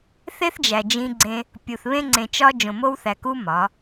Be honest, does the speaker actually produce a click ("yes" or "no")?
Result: yes